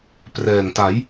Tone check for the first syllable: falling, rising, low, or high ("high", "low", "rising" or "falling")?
low